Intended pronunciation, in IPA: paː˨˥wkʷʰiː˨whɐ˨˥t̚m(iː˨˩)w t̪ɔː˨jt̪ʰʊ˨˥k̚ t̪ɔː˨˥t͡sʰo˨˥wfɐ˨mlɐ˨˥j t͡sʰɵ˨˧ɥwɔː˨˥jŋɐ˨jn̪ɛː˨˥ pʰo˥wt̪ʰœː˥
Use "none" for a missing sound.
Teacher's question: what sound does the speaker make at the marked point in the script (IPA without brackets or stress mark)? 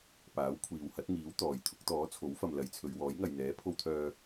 iː˨˥